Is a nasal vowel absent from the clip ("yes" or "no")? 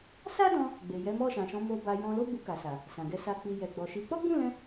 no